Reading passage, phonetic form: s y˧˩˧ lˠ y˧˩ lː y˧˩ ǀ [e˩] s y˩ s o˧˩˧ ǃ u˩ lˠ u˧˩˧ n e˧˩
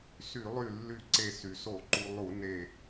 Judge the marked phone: incorrect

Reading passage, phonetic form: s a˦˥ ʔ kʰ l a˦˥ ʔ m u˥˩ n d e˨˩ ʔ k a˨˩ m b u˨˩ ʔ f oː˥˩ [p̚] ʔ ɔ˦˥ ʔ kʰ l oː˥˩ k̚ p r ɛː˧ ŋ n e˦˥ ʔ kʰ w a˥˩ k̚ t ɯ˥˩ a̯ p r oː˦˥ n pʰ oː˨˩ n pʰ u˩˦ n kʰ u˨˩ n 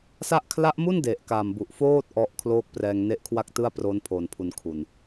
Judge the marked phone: incorrect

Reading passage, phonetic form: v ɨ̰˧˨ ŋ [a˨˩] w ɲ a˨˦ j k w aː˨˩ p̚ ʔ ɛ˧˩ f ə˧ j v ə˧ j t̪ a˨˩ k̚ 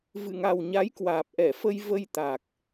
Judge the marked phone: correct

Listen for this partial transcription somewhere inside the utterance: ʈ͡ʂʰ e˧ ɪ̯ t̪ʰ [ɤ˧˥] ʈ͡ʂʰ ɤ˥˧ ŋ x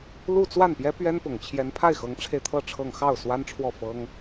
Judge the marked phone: incorrect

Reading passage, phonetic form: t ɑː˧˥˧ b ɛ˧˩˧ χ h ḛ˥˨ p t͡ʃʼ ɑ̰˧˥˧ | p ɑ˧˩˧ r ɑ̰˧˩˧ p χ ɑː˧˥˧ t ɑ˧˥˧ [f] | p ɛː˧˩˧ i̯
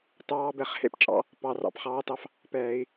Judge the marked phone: correct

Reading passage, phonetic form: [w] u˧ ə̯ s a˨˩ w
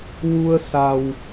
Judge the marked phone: correct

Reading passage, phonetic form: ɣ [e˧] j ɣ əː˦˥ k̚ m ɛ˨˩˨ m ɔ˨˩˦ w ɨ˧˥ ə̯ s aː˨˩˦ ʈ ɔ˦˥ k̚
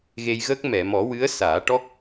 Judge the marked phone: correct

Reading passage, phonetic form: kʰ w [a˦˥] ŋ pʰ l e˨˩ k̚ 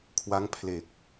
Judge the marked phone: correct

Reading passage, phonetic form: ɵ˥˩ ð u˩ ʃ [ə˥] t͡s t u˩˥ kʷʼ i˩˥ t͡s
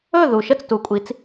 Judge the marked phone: correct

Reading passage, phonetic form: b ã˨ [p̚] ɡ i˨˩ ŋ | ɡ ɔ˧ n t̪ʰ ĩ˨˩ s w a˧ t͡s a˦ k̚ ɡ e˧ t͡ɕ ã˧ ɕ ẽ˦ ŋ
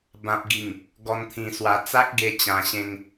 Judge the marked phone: correct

